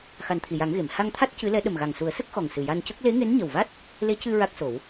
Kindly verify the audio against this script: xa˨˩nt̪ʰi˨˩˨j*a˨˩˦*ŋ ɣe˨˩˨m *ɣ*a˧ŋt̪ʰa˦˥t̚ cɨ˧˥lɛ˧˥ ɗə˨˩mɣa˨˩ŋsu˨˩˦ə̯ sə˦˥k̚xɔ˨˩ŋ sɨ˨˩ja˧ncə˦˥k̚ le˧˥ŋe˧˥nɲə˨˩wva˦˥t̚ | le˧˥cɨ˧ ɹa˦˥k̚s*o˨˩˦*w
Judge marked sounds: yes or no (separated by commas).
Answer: yes, no, yes